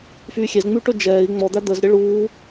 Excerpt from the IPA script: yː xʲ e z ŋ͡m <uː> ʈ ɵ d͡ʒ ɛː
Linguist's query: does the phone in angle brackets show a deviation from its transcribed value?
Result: yes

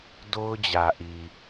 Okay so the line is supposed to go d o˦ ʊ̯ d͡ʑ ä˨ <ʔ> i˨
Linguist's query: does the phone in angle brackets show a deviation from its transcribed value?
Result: no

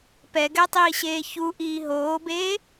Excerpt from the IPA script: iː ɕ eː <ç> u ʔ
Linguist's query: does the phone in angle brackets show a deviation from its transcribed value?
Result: no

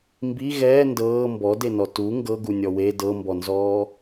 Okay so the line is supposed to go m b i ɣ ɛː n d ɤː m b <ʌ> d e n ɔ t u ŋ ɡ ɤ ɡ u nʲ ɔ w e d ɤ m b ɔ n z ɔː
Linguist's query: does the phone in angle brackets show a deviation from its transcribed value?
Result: yes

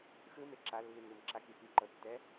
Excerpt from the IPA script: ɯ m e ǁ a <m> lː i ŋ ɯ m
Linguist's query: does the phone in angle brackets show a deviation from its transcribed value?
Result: yes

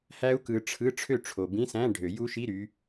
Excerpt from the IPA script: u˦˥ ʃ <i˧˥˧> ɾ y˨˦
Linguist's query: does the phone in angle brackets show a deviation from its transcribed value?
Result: no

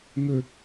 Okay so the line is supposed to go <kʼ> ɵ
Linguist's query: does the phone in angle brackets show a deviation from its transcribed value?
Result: yes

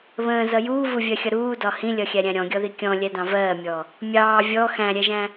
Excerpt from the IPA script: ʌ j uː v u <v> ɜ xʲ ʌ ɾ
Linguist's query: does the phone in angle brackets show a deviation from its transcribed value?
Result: yes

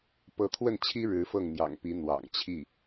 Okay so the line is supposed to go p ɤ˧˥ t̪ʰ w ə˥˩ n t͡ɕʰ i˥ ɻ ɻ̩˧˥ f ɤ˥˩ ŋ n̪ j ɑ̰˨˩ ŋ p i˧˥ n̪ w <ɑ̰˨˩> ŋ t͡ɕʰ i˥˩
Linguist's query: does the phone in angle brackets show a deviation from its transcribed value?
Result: no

